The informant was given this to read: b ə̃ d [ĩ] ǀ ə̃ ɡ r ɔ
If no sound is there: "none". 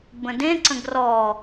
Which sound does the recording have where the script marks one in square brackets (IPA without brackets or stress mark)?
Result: ẽ